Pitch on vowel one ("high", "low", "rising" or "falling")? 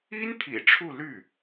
high